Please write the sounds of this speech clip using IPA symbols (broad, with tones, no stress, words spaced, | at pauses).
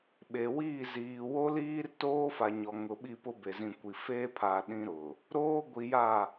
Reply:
ɓe˨wiː˦˨ ziː˨wo˦liː˦rtoː˦ fa˨ ɲɔ˨ ŋʊ˨ɓi˦˨pʊ˦ be˨zĩ˨kʷi˨ feː˦pʰa˨ ɗĩ˦ɾʊ˨ | ɾoː˦ɡʷi˨ja˦˨